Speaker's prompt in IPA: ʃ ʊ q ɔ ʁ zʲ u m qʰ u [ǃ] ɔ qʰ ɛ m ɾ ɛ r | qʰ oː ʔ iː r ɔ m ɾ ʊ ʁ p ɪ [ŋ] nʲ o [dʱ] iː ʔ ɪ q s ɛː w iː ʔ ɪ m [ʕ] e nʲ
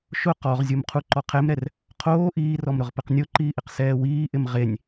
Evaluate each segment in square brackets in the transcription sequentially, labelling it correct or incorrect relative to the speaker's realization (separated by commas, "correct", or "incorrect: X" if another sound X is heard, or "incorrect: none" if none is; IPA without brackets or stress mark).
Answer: correct, incorrect: q, incorrect: ǃ, incorrect: ʁ